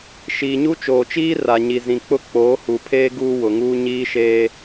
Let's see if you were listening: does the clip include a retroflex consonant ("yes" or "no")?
no